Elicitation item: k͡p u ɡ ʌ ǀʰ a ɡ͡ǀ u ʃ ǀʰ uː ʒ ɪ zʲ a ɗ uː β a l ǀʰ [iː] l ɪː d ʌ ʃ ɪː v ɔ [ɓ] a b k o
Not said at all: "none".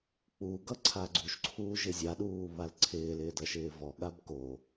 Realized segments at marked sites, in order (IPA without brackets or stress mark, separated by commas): ɪː, ɠ